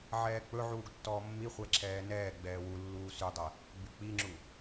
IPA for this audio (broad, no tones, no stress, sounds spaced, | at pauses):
ʕ ɛː k͡p ɵ ʕ uː ɡ tː ɔː mː i χʷ ɛ ǁʰ ɛː n ɛː ɡ͡b ɛː w u lː uː s y dˤ ɛ | ɡ͡b y k͡p i ŋ͡ǁ u